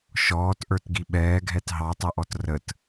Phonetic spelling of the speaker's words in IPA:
ʃ ɔː t ʔ ə˞ t ɡ i ɓ ɛː ɡʱ ɛ t ɦ ɑ tˤ ɛ ʔ ɔ t r ə t

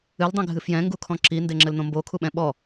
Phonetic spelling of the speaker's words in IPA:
ɨ l dˤ ĩ ɡʱ ɨ f j ɛ̃ ŋ ɡ u kʰ ɔ̃ ǁ i n d e ŋ͡ǁ ɘ l n̪ õ m b o kʰ u ɓ ɛ̃ ɓ ɔ

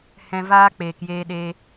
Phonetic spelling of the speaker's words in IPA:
h ɛ̃˧ v aː˦ k͡p eː˨ k j eː˧ ɗ eː˧

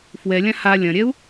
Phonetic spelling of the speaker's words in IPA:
f w ɛ lʲ ã h a lʲ ɐ̃ ɾʲ ɛ u̯

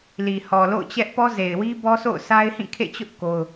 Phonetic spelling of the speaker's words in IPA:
l i˨ h ɔ˨ l o̰˦˨ ʊ̯ t͡ɕ ɛ˦ ʔ p ɔ˦ z e˨ ɪ̯ w i˦ b ɔ˦ s o̰˦˨ ʊ̯ sʰ a˦ ɪ̯ h ĩ˦˨ kʰ ḛ˦˨ t͡ɕ ʊ˦ ʔ k o˦ ʊ̯

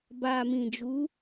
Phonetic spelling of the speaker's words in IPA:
b a˨ m ĩ˨ d͡ʒ u˨˦

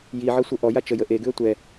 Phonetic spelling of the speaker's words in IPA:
j i ʕ ɤ sʷ ɤ ʔ ɔ j a t͡ʃ ə j ə ʔ e ɡ ʉ ə̯ tʷ ɛ

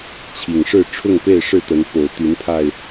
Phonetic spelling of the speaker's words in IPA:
t͡ɕʰ i˨˩ ŋ ʂ ɻ̩˥˨ ʈ͡ʂʰ ʊ˥˨ ŋ p e˥˨ ɪ̯ ʂ ɻ̩˥˨ t̪ ə˨˦ n f o˨˩ ʊ̯ t̪ y˨˦ n pʰ a˧ ɪ̯

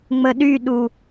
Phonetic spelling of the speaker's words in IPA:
ŋ͡m ə ɗ y ɗ u

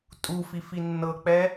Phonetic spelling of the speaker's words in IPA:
tʼ u f i f i nː ɤ k͡p ɛ

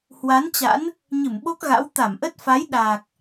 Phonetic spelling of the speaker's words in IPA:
h w a˨˦ n t͡ɕ a̰˧˥ n | ɲ ɨ˧˩ m ɓ o˦˥ k̚ ɣ a̰˧˥ w t̪ a˧˩ m ʔ ə˦˥ t̚ f a˨˦ j ɗ aː˨˩ k̚

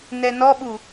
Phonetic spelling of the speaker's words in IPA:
n ɛ n ɔ ɓ u

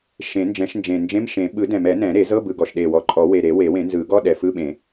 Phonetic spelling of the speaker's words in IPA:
ʃ ẽ˨˩˦ n d͡ʒ ɛ̃˨˩˦ ʃ n d͡ʒ ẽ˨˩ n d͡ʒ ẽ˧˥˧ m ʃ ẽ˨˩˦ ɓ ɯ˨˩˦ d ɛ̃˨˩ m ɛ˨˩˦ n ɛ̃˨˩˦ ɾ e˨˩˦ z ɤ˧˥˧ b ɯ˨˩ ɡ ɔ˨˩ ʃ ɗ e˨˩ w ɔ˨˩ ǃʼ ɔ˨˩˦ w e˨˩ ɾ e˨˩˦ w e˨˩˦ w ẽ˨˩˦ n z ɯ˨˩˦ ɡ ɔ˧˥˧ ɗ ɛ˨˩ f ɯ˧˥˧ ɓ ẽ˨˩˦

